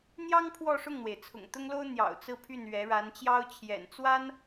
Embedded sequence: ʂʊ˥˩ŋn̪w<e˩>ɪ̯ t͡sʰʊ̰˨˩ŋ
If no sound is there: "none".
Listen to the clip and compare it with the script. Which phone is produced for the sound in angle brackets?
e˩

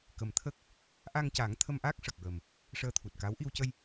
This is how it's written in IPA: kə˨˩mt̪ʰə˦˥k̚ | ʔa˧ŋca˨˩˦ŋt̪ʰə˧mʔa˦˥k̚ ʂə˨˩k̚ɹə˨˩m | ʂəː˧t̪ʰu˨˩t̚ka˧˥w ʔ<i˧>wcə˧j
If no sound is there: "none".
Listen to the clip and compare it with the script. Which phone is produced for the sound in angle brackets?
i˧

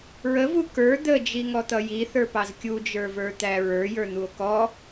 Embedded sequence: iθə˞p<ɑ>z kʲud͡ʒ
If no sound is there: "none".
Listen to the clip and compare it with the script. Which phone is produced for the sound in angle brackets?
ɑ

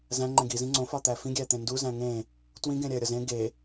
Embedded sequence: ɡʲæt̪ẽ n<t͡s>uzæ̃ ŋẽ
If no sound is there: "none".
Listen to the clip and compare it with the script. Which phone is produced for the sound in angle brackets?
d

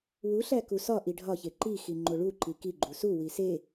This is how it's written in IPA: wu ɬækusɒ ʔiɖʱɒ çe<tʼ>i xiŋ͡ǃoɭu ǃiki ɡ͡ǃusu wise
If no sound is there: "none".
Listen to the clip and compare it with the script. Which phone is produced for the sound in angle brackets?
ǃ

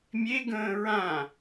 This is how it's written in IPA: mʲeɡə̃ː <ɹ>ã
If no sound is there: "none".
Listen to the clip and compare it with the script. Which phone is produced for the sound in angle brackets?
ɹ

